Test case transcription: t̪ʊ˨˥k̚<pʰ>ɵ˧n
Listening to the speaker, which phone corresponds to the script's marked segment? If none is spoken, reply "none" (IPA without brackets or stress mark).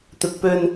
p